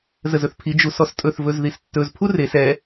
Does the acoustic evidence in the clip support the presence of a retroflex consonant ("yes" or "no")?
no